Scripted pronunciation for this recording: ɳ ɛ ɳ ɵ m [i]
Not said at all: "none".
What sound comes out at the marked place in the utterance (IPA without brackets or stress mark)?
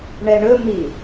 i